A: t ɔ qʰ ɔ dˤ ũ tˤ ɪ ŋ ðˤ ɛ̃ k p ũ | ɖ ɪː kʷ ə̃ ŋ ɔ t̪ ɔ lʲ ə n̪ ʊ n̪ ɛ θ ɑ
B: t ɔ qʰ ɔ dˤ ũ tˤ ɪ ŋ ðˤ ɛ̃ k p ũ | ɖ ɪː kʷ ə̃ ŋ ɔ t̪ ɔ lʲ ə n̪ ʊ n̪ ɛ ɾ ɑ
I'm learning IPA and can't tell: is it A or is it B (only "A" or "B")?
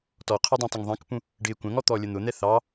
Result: A